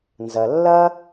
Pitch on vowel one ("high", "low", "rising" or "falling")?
low